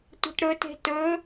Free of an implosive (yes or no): yes